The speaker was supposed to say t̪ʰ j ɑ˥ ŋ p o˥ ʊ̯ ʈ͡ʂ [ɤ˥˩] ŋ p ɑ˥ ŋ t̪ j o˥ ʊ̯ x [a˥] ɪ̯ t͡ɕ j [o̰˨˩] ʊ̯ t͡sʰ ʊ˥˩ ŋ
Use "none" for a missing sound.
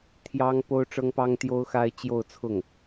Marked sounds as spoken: ɤ˥, a˥, o˥˧

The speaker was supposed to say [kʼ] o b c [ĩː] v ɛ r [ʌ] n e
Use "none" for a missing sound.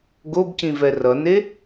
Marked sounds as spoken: ɡ, ĩ, ʌ

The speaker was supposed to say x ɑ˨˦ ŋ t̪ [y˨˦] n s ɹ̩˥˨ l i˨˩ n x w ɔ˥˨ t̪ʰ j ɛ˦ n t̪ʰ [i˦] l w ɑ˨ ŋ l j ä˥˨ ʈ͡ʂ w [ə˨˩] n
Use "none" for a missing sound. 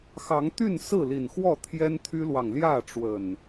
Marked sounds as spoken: y˥˨, y˦, ə˨˩

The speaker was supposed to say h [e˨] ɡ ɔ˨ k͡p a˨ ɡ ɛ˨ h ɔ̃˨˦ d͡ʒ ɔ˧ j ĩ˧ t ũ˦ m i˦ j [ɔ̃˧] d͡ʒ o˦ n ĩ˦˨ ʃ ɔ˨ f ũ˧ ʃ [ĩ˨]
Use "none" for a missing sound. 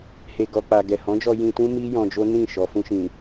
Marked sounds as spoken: e˨, ɔ̃˧, ĩ˨

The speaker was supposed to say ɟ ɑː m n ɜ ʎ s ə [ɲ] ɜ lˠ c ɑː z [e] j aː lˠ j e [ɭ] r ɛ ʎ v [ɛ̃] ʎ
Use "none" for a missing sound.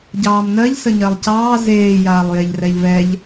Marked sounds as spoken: ɲ, eː, ʎ, ɛ

